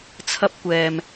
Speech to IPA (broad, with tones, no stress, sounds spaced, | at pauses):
t͡sʰ ɐ˧ p̚ kʷ ɛː˨ m